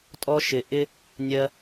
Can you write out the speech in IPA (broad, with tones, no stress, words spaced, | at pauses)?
tʼɔ˧ ʃɪ˧ʔɪ˦ | nʲɜ˧